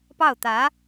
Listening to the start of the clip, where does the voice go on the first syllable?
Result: falling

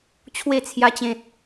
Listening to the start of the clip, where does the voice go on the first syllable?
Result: falling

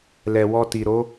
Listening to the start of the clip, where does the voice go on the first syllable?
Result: low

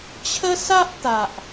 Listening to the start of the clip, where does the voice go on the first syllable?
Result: high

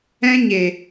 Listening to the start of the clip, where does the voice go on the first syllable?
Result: high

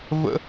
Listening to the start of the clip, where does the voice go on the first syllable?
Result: high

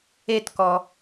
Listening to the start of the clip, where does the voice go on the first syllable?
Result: falling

